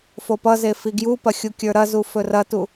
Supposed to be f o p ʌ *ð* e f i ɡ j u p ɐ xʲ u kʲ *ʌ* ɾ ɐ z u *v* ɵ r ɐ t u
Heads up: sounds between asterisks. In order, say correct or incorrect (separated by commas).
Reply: incorrect, incorrect, incorrect